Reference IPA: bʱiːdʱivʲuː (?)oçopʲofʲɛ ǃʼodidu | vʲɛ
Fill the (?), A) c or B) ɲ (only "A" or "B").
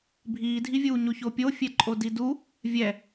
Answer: B